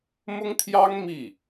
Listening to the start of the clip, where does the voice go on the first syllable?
high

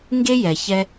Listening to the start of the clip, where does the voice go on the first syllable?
high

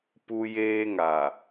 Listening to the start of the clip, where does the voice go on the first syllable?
low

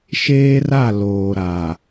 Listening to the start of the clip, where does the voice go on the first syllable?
high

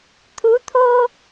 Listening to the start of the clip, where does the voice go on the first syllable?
rising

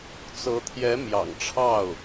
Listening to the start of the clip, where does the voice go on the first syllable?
rising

